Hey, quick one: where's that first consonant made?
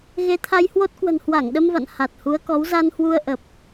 velum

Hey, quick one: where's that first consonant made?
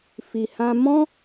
lips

